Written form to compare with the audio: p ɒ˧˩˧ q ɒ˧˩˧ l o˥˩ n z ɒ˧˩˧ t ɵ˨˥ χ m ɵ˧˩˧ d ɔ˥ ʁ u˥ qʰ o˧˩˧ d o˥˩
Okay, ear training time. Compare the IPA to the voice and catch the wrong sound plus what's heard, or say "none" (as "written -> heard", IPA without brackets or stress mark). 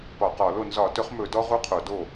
none